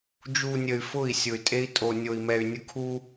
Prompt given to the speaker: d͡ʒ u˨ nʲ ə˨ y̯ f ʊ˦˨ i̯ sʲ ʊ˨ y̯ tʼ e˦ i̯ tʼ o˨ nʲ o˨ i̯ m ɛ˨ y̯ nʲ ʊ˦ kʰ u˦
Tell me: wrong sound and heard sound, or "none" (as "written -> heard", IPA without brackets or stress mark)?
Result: none